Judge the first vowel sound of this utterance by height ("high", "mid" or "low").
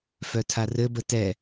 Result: mid